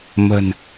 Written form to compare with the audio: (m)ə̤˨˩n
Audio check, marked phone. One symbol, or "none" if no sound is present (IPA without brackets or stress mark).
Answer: m